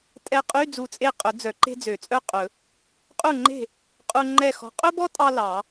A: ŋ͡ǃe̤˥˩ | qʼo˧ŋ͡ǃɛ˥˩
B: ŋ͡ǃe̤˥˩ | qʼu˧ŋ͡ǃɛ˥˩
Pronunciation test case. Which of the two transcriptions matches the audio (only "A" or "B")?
B